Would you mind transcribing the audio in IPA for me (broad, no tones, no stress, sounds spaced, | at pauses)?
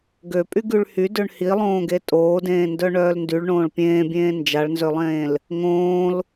ɡ ø pʼ y ɡ y ɭ h y d ø ɳ h i lˠ õː ɡ e tʼ oː d ẽː n d œ ɳ œː l n d y ɭ ɳ õː ɭ pʲ ẽː bʲ ẽː n d͡ʒ a ɭ n z ø lˠ ẽː l | ŋ õː l